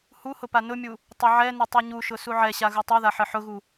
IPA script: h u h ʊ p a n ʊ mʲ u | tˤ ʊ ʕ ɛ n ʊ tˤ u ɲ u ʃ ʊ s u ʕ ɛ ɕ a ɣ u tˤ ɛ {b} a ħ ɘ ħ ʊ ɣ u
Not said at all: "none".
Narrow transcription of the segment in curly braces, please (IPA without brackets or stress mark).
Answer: ð